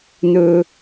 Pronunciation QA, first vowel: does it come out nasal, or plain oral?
oral